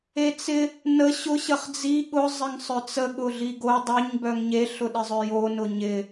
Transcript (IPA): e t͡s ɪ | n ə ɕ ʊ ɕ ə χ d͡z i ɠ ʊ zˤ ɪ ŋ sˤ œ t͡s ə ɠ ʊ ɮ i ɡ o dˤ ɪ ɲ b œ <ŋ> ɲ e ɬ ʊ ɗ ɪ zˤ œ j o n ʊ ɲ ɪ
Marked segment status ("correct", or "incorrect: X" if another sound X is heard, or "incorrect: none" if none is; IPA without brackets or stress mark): correct